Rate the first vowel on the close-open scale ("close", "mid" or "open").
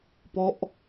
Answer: mid